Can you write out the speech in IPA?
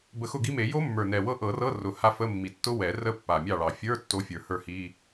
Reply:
bə˨˩˦ xʊ˥˩ɡi˦˥me˨˩˦ jo˦˥ mːə˞˨˩nɛ˨˩wɤ˦˥ ʔɤ˨˩˦rɤ˧˥˧ rʊ˨˩ ha˦˥ fə˧˥˧mːi˨˩ tːʊ˦˥wɛ˨˩˦rə˦˥ pːa˨˩mʲɑ˥˩ɭɑ˨˩˦ fʲə˞˧˥˧ tːo˦˥fʲə˞˨˩˦hə˞˥˩hi˧˥˧

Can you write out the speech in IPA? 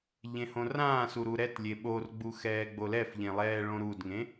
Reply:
ʎẽhõrãːsu ɾuɾɛtlʲe ɓorɡ͡bu xɛːɡ͡bolɛfʎẽ lˠɛːɭõɾudŋẽ

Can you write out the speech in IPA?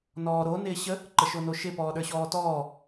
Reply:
nɔːɾo nɪːɕə | ǃəʃonoʃɪ pɔːɗə˞ɕɔːtɔː

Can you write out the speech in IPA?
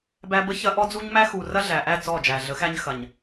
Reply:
bæ˦bə˦çɐ˦ ʔɔ˦d͡zu˦ɲmæ˦ xu˨ rɐ˦ɮæ˨ʔæ˦˨ t͡sɔ˦˨d͡ʒæ˨ɮə˨˦xæ˦ɲ xɐ˨ɲ

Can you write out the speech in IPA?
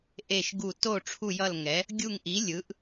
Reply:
ʔe˦˨ʃɡu˦˨ to˦˨ ʈ͡ʂʰu˦˨jʌ˦˨l ŋɛ˨˥ | ɡʲu˦˨ŋʔi˨˥ lʲɯ˨˥ʔ

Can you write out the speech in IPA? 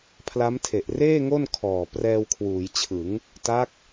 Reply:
pʰla˦˥mtʰe˨˩ʔreː˥˩ŋo˥˩n kʰɔː˨˩ prɛː˧wkʰwuː˩˦jt͡ɕʰɯ˩˦ŋ | ta˦˥k̚

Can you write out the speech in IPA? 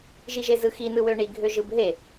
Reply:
ʒiʒezɯxi nɯwøɳi ɡʱøʒɯbɦe

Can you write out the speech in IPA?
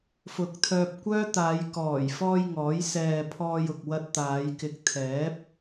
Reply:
fʊ˨k̚t̪ʰœː˧p̚kʷœː˥t̪aː˨˧j kɔː˨˩jfɔː˧j ŋɔː˨˥jsɛː˧ pʰɔː˧jʊ˨k̚ wɐ˧t̚t̪aː˨˧jkɪ˨˥k̚ t̪ʰɛː˨˥p̚

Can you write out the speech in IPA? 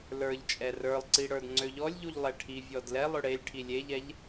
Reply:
lə˞ʎt͡ʃʼɛ rə˞lˠǀi ɽə˞dŋ͡ǀøʎɔlʲʎuʎ lˠɛʈʰivʲɔd lɛ lˠøɽelʲʈʰi lʲeʎɛʎ

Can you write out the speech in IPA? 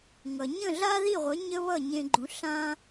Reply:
ŋʌ˩ ɲə̃˥˩ɮa˥ði˥˩ʁʷə˩˥ ɲə˥βʌ˥˩ɲẽ˧ɡ͡ǃũ˩˥ ɬã˧

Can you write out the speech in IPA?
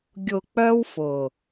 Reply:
ɡʲʊ˨k͡pœ˧w fʊ˨

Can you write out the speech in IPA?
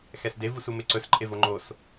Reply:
xɛsde vusumeǀɵs ǃʼevoŋ͡ǃos

